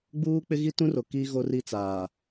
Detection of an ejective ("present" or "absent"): absent